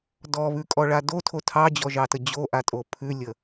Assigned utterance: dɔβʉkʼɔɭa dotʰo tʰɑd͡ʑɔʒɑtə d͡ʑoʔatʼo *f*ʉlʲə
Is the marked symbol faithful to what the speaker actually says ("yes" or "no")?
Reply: no